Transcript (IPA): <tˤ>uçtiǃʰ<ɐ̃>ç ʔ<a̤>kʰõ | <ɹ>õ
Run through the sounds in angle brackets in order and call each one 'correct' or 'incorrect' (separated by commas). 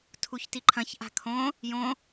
incorrect, correct, correct, incorrect